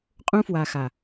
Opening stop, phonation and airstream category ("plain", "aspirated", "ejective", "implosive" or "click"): ejective